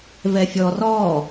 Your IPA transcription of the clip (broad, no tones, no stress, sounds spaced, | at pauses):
v ɛ fʲ ɔ r ɔ